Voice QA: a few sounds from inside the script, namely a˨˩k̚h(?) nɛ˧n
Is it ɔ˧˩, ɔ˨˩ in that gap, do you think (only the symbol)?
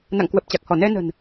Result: ɔ˧˩